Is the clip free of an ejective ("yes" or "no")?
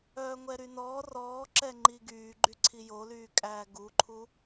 no